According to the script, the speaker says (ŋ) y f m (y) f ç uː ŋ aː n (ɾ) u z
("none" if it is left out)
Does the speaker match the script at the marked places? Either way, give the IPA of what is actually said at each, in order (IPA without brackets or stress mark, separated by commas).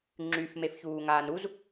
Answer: ŋ͡ǁ, e, ɾ